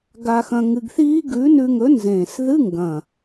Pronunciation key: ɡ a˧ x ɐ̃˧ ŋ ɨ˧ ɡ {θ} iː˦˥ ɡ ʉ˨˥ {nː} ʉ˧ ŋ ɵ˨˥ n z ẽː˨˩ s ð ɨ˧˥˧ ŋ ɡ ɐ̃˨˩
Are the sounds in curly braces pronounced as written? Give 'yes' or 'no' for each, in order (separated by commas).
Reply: yes, no